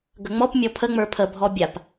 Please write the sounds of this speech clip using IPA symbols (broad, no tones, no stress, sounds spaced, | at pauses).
ɡ ə ŋ͡m ɔ p mʲ ɔ pʰ ə ŋ͡m ə˞ pʰ ə bʱ ɔ bʲ a p